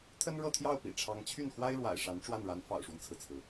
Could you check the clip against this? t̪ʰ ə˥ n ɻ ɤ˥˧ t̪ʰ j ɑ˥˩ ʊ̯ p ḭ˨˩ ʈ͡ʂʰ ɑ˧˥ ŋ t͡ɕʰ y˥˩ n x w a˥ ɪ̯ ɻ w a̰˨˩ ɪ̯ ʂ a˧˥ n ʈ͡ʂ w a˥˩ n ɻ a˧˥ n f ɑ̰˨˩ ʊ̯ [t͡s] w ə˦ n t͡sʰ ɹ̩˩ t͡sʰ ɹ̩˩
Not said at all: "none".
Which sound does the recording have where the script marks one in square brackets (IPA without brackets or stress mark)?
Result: ʂ